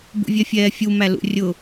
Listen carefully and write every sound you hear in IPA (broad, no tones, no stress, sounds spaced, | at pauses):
b ṵ vʲ ɛ fʲ ɛː fʲ u m æ l ṵ rʲ ʊ